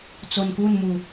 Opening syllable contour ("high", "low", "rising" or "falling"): low